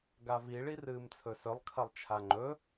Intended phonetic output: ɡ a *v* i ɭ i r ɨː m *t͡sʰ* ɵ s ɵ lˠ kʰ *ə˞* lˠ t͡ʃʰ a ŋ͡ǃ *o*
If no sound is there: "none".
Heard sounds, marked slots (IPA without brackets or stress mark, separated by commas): v, t͡sʰ, ɐ, ɵ